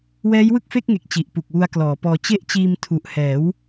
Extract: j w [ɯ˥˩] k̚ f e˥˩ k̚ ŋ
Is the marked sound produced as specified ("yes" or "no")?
yes